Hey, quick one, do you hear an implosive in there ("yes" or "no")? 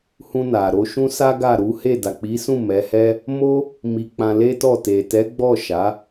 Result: no